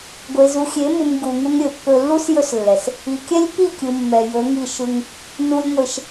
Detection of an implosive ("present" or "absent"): absent